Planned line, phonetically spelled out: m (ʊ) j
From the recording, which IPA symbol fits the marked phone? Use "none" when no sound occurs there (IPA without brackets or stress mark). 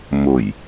ʊ